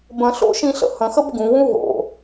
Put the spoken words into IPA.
b ə̃ ɬ o̰ ʃ ĩ ɬ ə̰ h ə̃ x ə b ɡ ũ w ũ ɦ o̰

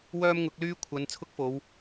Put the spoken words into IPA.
w œː˥ m ŋ ʊ˨˥ k̚ l yː˥ kʷʰ ɐ˨˧ n t͡sʰ ʊ˥ k̚ f o˨˧ w

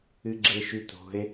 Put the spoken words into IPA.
ɨ ɡ͡ǁ e ʃ ʉ t o̤ e̯

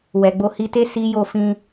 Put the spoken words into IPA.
w ɛ˨ ɡ͡b o˧ h i˧ t e˦ s i˦ j o˦˨ f ĩ˧

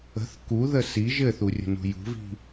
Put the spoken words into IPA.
ə̤ θ k u ð ə s i ʒ ɘ θ u rʲ ə̤ n ṳ j ṳ v i̤

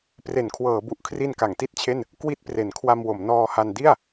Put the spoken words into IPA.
p r e˩˦ n kʰ w ɤː˩˦ b u˨˩ ʔ kʰ r i˧ n k a˩˦ ŋ t i˥˩ t̚ t͡ɕʰ e˥˩ n | k w i˥˩ t̚ p r e˩˦ n kʰ w a˧ m w o˩˦ m n ɔː˧ h a˧ n d i˥˩ a̯

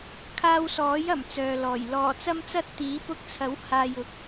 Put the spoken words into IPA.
kʰ aː˧ w s ɔː˨˥ j ɐ˨˩ m t͡s œː˨ l ɔː˨˩ j l ɔː˨˩ t͡s ɐ˧ m t͡s ɐ˧ t̚ t̪ iː˨˥ p ʊ˧ k̚ t͡sʰ ɐ˨˥ w h aː˨ j ʊ˨˥ k̚

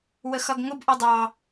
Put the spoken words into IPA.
w ə x ʌ ɡ ŋ ʊ b ʔ ɔ dˤ ɑ

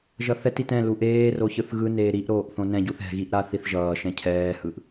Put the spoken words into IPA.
ʒ ʌ θ ɛ t i t ɛ̃ l u ʔ eː r o ç ɯ θ ɣ ɯ n eː ɾ i ʔ ɾ oː ʔ θ õ n ɛ̃ ɟ u θ ɛ̤ ɣ i ʔ ɾ a θ i θ ʒ ʌː ʃ ɛ̃ cʰ ɛː h ɯ ʔ

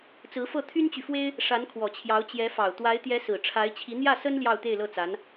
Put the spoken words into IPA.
t͡s ɹ̩˧˥ f ɤ˥˩ t̪ʰ y˥ n t͡ɕ y˨ f w e˥ ɪ̯ | ʂ a˧˥ n kʰ w ɔ˨˩ t͡ɕʰ j ɑ˧˥ ʊ̯ t͡ɕ j ɛ˧˥ f ɑ˨˩ ʊ̯ t̪ w a˧˥ ɪ̯ t̪ j ɛ˧˥ s ɹ̩˨˩ ʈ͡ʂʰ a˧˥ ɪ̯ t͡ɕʰ i˧˥ n̪ j ä˥˩ s ə˥ n l j ɑ˥˧ ʊ̯ t̪ e˥˧ ɪ̯ l ɤ˥˩ t͡s a˧˥ n

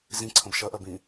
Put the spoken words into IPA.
z ĩ ǀʰ ə̃ b ʃ ɜ ʔ ɜ b ĩ

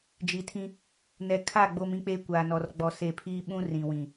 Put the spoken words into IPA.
d͡ʒ i˨ tʰ ĩ˦ | n ɛ˨ kʰ a˦˨ ɡ͡b o˦ m ĩ˦ k͡p e˦ kʷ aː˨ n ɔ˨ r ɡ͡b ɔ˨ s e˨ pʰ iː˦ ɓ ũ˦ r ĩ˨ w ĩ˨

